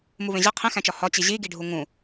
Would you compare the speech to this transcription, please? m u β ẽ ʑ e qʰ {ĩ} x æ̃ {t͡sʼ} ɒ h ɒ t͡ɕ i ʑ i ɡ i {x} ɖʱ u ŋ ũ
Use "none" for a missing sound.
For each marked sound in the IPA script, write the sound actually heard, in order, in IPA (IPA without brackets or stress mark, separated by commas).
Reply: ĩ, t͡ʃ, none